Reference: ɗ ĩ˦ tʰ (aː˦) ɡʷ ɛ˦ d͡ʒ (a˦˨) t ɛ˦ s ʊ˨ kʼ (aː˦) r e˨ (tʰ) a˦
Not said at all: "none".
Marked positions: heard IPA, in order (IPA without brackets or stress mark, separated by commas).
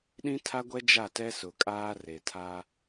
a˦, a˦˨, aː˦, tʰ